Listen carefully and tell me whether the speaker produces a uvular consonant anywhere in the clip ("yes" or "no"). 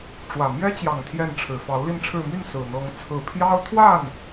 no